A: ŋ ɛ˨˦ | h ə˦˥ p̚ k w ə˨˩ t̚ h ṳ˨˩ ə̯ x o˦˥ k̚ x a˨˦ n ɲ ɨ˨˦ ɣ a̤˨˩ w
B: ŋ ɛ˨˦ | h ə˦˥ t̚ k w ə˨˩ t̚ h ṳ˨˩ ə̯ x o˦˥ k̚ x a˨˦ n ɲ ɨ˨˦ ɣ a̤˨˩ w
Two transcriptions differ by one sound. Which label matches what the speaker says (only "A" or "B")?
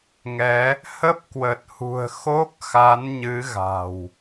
A